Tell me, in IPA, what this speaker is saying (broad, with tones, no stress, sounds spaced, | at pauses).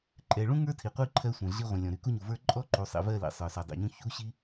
ǃʼ ɛ˨ ɭ ũ˦ ŋ ə˞˦ tʰ i˨ qʷ i˦˨ ǃʰ ɜ˦ sʷ ẽ˨ ɮ i˦ ʁʷ ĩ˨ lʲ ɔ̃˨ ɾ y˨ k u˦ ɲ u˨ v ə˞˦ ǃʼ ɔ˦ ǃ u˨ sˤ ḭ˨ v ɜ˦˨ l ḭ˨ sˤ ə˞˨ s ə˞˨ dˤ ḭ˨ ɲ ũ˦ ç u˦ ɕ i˦